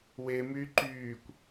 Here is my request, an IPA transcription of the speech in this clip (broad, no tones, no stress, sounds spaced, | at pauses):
w e m yː ǃ yː kʷ